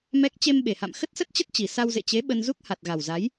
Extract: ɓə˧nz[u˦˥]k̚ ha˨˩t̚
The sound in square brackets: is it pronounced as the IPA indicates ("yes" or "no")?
yes